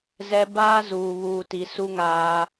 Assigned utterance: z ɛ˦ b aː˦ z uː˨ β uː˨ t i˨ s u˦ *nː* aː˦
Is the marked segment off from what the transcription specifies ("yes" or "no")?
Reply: yes